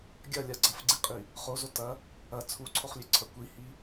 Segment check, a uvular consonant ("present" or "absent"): present